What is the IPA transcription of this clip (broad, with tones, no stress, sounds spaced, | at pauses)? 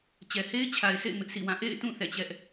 t͡ɕ ɛ˨ h e˦ ɪ̯ t͡ɕʰ a˨ ɪ̯ s ḛ˦˨ ɪ̯ m ɪ˦ ʔ s ḭ˦˨ w ã˦˨ ʔ ḛ˦˨ ɪ̯ t ũ˦˨ θ ɛ̰˦˨ t͡ɕ ɛ˦ ʔ